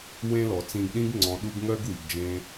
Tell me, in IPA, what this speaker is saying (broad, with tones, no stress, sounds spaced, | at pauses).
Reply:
w ẽ˦ l ɔ˨ t͡s ĩ˧ ɡ ɗ ĩ˦ ɡ ŋ͡ǀ ɔ̃˨ ɗ u˧ ɡ ŋ œ˦ ɡ w i˨ ɡ d͡ʒ ẽ˧